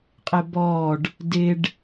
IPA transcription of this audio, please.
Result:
qʼ ɪ b ɔː ɖ | d ɪ ɖ

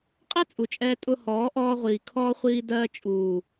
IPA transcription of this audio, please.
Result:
qʼ ɛ˦ t͡sʼ u˨ t͡ʃʼ ɛː˧ tʼ ʊ˧ h ɔː˨˦ ʔ ɔː˧ ʁʷ iː˨ kʰ ɔː˧ χʷ iː˧ d ɜː˧ t͡ʃʼ uː˨

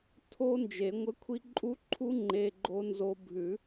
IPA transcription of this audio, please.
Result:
tʰ o˦˥ n d͡ʒ e˨˩˦ ŋʷ ə˧˥˧ kʷʰ i˦˥ ǃʼ u˦˥ ǃʰ u˦˥ ŋ͡ǃ e˧˥˧ ɡ͡ǃ o˦˥ n z o˦˥ bʱ ʉ˨˩˦

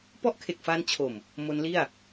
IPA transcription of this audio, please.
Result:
p ɔ˦˥ ʔ kʰ e˨˩ k̚ f aː˧ n t͡ɕʰ o˨˩ m | m o˦˥ n l i˥˩ a̯

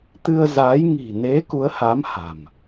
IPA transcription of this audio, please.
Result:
t̪ ɨ˧ ə̯ z aː˨˦ j ŋ i̤˨˩ n e˨˦ k u˨˦ ə̯ h a˨˦ m h a̤˨˩ m

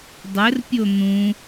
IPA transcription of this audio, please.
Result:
dˤ ɘ r pʲ o n̪ ũ

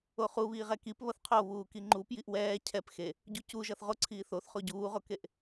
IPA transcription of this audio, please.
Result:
o χ u β iː ʁ ɛ k i p β ʌ θ qʰ o β uː k i ŋ͡ǃ u p j i ʔ w ɛː cʰ ɛ p x e | ɟ u c u ʒ ʌ θ ʁ o ǀʰ iː θ o θ χ o ɟ uː ʁ o k e ʔ

